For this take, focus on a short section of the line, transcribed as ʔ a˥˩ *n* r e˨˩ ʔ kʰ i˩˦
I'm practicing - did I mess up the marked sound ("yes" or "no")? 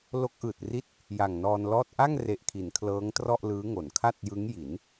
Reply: yes